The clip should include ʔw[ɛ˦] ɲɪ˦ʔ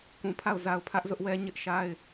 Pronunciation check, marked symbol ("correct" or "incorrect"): correct